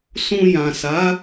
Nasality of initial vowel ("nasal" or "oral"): nasal